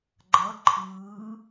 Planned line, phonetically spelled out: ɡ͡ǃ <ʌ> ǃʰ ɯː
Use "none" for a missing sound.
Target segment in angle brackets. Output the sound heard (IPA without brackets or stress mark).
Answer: ʌ